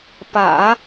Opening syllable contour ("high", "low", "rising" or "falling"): low